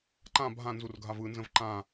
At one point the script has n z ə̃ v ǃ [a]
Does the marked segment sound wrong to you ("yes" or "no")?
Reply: yes